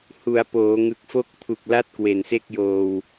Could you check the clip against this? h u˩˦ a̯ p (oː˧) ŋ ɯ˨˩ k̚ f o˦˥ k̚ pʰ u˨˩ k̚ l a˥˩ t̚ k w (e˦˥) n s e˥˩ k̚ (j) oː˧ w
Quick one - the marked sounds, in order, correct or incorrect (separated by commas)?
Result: incorrect, incorrect, correct